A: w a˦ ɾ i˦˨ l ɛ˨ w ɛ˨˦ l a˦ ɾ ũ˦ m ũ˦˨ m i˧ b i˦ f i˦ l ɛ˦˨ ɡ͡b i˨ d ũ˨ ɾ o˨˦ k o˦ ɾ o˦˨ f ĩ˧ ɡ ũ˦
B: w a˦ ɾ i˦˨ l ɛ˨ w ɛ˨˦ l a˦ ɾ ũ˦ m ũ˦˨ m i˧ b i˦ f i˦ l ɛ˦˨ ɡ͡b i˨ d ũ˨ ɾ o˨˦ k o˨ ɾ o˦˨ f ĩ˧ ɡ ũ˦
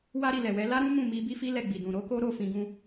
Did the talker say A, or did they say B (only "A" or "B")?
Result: A